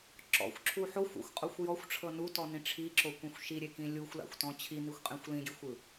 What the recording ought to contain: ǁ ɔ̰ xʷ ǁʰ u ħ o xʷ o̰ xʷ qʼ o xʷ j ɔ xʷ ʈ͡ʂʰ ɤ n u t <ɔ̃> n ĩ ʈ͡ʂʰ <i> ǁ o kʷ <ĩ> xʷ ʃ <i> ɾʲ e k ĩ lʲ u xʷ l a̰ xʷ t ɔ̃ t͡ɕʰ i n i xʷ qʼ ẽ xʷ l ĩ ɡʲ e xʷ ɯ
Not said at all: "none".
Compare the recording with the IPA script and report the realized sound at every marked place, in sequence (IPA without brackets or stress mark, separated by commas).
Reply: ɔ, i, ĩ, i